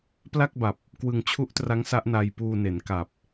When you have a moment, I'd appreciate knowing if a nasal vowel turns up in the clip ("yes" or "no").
no